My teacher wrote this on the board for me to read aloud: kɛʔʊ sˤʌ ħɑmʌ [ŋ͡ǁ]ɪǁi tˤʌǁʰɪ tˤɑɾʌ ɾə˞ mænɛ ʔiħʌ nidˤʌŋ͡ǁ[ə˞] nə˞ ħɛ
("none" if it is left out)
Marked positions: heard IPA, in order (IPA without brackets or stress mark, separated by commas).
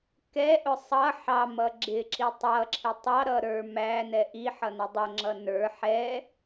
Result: ɡ͡ǁ, ʌ